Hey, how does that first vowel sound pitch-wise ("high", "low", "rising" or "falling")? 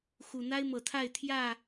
low